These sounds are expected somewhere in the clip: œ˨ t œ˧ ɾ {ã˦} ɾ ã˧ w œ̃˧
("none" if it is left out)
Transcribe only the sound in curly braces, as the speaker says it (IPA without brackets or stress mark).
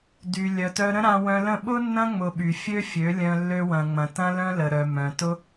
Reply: ə̃˦